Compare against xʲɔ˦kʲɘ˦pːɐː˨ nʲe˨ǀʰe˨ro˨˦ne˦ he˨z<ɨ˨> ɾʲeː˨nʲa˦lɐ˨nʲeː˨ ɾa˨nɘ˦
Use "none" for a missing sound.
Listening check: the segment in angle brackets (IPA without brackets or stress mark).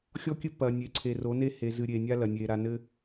ɨ˨